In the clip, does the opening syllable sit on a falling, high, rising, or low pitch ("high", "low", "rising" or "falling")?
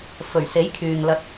low